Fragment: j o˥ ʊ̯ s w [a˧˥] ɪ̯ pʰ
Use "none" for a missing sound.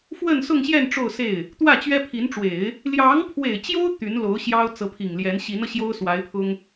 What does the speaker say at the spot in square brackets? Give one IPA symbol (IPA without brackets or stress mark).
a˧˥